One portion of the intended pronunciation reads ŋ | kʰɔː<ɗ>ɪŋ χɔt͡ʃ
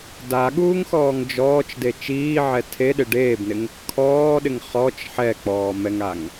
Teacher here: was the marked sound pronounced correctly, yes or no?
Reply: yes